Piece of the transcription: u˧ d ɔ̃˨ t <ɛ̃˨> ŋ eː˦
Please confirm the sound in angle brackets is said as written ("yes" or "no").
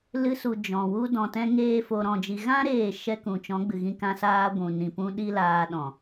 no